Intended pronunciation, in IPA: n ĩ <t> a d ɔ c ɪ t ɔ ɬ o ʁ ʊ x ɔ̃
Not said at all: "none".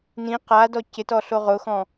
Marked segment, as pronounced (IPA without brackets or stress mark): q